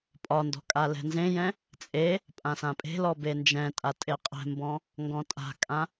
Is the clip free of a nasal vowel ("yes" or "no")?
no